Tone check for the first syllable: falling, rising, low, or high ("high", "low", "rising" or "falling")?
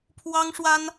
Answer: high